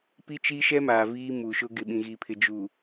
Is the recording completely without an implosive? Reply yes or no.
no